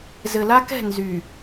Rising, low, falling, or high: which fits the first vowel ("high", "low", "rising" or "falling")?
low